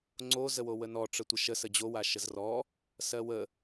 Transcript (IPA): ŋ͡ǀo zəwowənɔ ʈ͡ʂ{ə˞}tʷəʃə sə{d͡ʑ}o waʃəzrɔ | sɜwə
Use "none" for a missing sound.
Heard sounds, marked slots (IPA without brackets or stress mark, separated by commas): ə, d͡ʑ